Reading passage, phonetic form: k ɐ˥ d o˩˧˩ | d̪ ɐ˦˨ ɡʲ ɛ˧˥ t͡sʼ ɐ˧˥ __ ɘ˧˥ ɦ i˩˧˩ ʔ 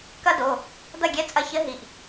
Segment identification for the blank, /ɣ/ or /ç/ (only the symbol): ç